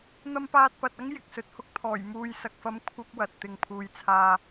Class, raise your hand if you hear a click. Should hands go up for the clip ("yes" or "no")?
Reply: no